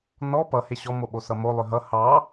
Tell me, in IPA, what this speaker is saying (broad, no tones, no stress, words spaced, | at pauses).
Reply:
nɔ pʌhe ɕɔmoɓo sʌmo lˠʏɦʌ hɑ